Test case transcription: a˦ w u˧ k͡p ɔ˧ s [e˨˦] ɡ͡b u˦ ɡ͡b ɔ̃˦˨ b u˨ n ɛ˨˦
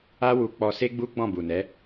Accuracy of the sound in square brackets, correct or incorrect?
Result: incorrect